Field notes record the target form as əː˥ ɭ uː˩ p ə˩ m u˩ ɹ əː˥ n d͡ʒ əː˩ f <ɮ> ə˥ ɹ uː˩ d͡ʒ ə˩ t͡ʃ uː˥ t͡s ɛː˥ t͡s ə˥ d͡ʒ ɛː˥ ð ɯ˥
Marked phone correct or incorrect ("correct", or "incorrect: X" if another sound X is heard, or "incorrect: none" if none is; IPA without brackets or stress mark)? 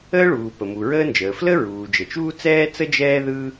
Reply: incorrect: l